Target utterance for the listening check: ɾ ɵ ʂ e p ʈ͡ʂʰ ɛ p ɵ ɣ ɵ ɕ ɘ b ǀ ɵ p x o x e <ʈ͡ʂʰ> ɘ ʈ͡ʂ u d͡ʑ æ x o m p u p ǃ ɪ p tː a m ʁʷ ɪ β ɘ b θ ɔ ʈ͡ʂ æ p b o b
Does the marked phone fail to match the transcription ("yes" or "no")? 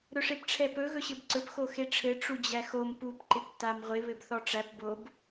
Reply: no